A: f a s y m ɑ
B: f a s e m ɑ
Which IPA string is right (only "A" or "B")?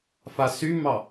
A